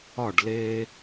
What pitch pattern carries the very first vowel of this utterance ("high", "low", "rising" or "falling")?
falling